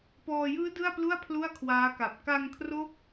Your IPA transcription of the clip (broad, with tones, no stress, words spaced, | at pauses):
pɔː˧ jɯː˦˥ dɯ˥˩a̯plu˥˩a̯ pʰlu˥˩a̯kʰwaː˦˥ka˨˩p̚ ka˧ŋkʰro˦˥k̚